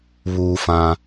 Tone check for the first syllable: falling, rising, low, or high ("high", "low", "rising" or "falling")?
high